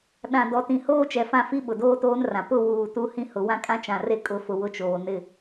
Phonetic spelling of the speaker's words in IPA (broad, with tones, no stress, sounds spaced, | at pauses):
ɗ ã˨ d ɔ˨ t ĩ˨ h oː˦ t͡ʃ ɛ˨ f ã˦˨ f i˦ ɓ ʊ˨ d oː˦ t oː˦ n r ã˨ p ʊ˦˨ w uː˨ t u˦ h ĩ˦ h ʊ˨˦ w ã˦ kʼ ã˦ t͡ʃ ã˨ r e˦ kʼ ʊ˦ f ʊ˦ w ʊ˦˨ t͡ʃ oː˨ n ɪ˦˨